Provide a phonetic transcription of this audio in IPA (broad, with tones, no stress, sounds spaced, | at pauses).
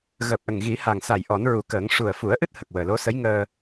ɣ əː˨˩ p̚ ʔ ə˨˩ ŋ ɣ i˨˩˦ h a˨˩ ŋ s a˨˩˨ j ʔ ɔ˨˩˦ n ɹ u˨˩˦ k əː˨˩˦ ŋ ʂ u˨˩ ə̯ f u˨˩˦ ə̯ ʔ ɨ˦˥ t̚ h ə˨˩ k̚ w əː˨˩ l o˧˥ s ə˧˥ j ŋ əː˧